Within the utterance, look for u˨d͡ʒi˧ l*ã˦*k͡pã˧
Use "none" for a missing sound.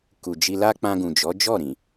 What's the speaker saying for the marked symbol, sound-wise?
a˦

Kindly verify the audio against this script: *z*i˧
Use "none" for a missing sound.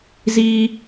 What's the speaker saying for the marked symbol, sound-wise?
z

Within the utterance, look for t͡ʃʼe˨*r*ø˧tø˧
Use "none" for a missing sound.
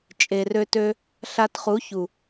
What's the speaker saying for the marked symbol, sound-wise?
r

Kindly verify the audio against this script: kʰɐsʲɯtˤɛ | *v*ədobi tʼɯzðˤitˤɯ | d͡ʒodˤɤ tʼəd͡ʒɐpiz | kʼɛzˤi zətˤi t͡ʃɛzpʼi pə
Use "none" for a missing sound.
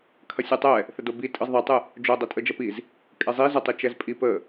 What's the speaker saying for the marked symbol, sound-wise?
θ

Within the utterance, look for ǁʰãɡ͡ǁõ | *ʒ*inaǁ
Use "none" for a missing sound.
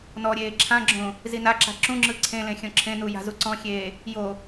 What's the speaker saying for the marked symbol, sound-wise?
z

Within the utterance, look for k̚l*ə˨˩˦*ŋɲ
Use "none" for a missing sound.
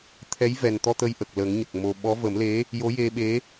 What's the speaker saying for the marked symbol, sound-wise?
ə˨˩˦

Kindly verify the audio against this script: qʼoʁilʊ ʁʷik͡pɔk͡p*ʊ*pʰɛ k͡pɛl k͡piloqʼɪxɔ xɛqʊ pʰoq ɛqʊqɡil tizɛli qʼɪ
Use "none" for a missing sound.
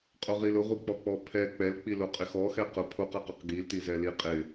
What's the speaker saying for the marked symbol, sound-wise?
ɔ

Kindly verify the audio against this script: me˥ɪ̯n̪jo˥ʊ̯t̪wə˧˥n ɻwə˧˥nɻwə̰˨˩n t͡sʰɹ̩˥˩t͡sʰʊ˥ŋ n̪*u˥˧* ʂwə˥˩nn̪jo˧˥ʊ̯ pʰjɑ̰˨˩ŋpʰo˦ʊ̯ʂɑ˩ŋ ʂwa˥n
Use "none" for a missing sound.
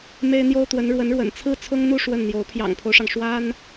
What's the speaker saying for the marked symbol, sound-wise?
u˥˧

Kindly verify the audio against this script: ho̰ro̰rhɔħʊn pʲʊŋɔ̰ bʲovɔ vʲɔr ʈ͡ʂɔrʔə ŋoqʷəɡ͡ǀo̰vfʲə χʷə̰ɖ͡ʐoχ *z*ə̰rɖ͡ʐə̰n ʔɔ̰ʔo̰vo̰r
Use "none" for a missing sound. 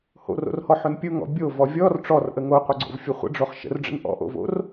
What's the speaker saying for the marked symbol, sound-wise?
ʃ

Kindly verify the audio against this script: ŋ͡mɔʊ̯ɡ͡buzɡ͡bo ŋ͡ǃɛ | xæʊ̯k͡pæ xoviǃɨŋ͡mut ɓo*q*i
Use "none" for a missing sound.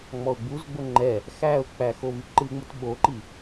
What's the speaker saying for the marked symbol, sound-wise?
ǃ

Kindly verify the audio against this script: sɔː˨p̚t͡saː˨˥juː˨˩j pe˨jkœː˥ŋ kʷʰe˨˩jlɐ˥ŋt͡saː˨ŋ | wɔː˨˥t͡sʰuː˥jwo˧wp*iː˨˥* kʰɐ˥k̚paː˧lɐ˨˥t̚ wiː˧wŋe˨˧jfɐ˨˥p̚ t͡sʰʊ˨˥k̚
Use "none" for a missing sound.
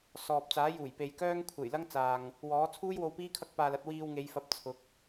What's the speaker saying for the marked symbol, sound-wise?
iː˥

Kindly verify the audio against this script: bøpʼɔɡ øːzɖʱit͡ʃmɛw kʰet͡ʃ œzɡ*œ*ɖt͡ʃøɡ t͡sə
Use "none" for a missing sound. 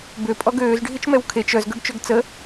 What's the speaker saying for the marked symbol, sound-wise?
ø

